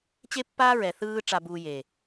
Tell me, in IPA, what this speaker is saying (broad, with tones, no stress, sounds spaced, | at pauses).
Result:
t͡ɕ e˦ pː aː˦ ɹ ɛ˨ θ ɯː˦ ʈ͡ʂ a˨ b uː˨ j e˨